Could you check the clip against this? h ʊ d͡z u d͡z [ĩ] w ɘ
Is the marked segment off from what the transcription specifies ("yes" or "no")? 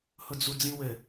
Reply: no